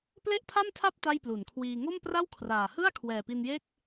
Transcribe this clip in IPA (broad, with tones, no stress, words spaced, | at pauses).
ple˥˩ʔpʰa˥˩mtʰa˥˩p̚ ta˥˩jplu˩˦nkʰwiː˧ ŋo˥˩mpra˥˩wkʰraː˨˩ hɯ˥˩a̯ kʰwɛː˨˩pi˧njeː˥˩k̚